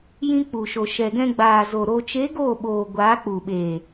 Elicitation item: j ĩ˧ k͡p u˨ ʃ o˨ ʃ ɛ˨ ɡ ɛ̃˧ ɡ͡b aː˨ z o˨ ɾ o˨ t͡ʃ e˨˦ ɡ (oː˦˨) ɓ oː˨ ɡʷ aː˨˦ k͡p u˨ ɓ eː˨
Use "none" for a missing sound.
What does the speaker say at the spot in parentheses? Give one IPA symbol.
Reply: oː˦˨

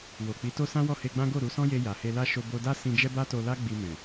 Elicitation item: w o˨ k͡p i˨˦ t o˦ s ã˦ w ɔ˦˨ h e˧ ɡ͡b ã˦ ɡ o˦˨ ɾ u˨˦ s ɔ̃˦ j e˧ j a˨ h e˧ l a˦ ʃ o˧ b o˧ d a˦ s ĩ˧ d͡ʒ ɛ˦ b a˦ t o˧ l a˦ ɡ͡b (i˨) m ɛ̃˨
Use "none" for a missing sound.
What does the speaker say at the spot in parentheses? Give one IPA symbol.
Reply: i˧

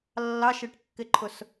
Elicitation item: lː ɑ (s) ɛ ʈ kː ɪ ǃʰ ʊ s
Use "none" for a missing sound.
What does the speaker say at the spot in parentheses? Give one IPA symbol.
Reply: ʃ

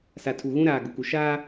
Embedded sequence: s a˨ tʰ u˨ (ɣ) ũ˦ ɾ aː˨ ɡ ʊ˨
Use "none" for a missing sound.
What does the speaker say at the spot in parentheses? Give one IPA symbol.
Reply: ɣ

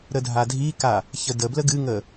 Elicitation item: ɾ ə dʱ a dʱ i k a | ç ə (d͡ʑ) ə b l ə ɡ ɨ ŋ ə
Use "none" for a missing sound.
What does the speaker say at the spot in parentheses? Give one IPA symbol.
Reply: d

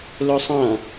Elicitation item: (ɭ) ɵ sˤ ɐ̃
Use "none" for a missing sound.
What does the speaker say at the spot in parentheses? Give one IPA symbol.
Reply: l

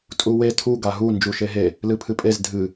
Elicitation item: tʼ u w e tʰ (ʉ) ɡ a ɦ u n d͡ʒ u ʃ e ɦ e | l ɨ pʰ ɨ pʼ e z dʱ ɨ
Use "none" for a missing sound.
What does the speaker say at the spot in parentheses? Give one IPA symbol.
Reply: u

